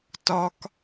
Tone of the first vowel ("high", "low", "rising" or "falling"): high